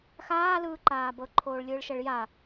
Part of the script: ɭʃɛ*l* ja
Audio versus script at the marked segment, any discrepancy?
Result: yes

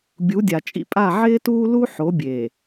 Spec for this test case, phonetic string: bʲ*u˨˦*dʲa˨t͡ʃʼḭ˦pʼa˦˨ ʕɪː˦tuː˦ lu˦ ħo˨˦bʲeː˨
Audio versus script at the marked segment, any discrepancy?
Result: no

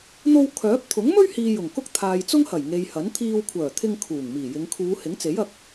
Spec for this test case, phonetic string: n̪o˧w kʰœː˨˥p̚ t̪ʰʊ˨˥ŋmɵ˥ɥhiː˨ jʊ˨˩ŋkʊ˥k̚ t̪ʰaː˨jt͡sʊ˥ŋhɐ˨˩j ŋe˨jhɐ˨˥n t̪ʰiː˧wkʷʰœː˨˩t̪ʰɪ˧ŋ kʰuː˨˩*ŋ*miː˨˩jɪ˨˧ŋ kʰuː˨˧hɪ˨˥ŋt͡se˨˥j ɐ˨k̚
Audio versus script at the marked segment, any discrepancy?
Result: no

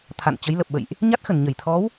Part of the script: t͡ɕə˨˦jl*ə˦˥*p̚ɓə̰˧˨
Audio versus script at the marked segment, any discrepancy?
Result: yes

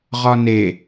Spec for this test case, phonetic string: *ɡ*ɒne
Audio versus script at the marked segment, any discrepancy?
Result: yes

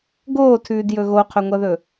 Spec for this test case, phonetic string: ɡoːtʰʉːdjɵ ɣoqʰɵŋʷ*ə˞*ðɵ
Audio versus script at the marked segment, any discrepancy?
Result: yes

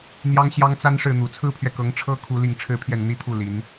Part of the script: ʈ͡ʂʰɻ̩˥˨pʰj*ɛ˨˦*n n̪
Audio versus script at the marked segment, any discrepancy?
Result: yes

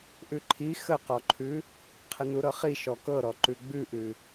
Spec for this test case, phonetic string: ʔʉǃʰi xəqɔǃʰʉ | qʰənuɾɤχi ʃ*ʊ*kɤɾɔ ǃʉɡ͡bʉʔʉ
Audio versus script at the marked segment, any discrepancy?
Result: yes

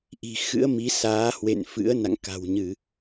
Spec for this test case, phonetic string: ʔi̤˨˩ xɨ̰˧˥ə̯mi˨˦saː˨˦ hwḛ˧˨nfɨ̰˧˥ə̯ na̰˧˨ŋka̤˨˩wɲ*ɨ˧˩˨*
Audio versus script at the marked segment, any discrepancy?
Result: no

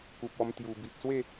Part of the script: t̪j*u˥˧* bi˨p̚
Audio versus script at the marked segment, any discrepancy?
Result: yes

